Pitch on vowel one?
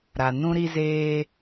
low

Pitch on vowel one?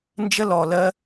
high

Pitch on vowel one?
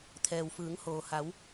low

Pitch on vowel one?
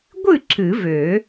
falling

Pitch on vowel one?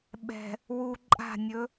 low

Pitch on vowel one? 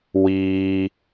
high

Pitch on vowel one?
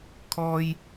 high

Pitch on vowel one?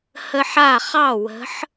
high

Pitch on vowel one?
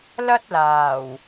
high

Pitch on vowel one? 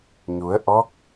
rising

